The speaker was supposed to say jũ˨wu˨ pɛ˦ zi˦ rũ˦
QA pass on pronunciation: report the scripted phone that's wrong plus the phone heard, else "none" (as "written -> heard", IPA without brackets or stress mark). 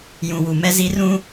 p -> m